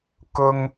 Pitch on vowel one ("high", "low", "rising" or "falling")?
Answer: high